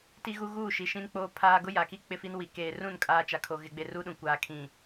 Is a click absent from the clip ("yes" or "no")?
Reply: yes